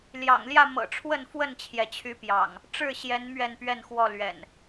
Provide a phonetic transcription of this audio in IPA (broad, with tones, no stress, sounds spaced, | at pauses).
l j ɑ̰˨˩ ŋ l j ä˥˨ m ɤ̰˨˩ ʈ͡ʂʰ w ə˥˨ n f w ə˥˨ n t͡ɕʰ j ɛ˩ t͡ɕʰ y˨˦ p j ɑ̰˨˩ ŋ | ʈ͡ʂ ɻ̩˥˨ ɕ j ɛ˨˦ n m ɥ ɛ˥˨ n p ɥ ɛ˥˨ n x w ɔ˥˨ l ɥ ɛ̰˨˩ n